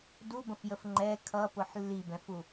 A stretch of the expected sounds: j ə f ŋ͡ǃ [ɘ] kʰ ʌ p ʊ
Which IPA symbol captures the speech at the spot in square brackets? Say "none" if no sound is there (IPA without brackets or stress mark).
ɛ